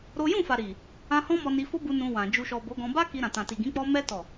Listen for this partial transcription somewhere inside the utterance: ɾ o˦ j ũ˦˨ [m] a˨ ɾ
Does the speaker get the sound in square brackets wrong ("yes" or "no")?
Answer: yes